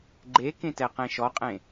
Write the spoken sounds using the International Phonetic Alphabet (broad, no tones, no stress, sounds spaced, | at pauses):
ɡ͡ǃ e k ẽ t ɛ q ẽ ʃ ɔ qʼ ẽ